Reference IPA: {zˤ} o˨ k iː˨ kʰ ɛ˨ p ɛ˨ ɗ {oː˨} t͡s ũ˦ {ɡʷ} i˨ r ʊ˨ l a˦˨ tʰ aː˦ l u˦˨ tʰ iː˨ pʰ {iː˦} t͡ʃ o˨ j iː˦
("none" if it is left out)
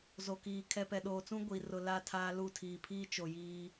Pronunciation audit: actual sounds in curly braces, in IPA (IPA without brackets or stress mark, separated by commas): z, oː˨, ɡʷ, iː˦